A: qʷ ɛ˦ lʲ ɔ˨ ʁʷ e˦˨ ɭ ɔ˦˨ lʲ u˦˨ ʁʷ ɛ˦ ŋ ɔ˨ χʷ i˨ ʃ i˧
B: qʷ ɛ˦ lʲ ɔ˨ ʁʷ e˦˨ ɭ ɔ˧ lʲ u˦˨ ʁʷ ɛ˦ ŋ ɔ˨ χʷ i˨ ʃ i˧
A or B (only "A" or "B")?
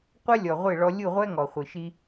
B